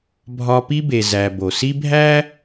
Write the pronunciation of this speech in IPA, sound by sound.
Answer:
bʱɒ˦pi˥be˨ zæ˨ bo˩si˦bʱæ˥

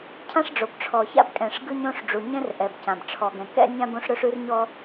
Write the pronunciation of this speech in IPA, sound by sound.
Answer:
cʰã˥ʂɖ͡ʐo˩b ʈ͡ʂʰɔ˩ça̰˥bkʼɛ̃˩ʂ ɡɯ˥ɲõ˥ʂɖ͡ʐu˩ ɲɛ̃˥rʔɛ˩bcã˩b ʈ͡ʂʰɔ˩ɡɛ̃˩kɛ̰˥nʲã˥b õ˥ʂɾɵ˥ʂʉ˥rɲɔ˥

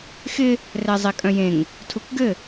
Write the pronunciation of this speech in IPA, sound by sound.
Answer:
xɪ | rɛzˤekʼœ̃jẽŋ | tʰukɡɘ

